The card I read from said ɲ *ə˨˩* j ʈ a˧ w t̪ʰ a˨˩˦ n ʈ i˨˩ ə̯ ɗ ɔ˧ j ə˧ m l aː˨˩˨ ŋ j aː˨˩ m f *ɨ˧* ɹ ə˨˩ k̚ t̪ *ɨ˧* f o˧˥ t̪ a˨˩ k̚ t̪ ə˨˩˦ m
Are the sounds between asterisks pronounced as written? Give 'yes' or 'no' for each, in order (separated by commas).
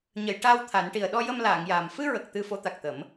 no, yes, yes